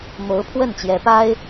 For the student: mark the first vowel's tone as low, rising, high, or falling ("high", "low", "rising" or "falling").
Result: rising